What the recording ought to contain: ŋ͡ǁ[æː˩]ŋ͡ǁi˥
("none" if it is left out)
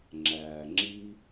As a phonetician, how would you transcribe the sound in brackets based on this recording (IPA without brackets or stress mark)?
æː˩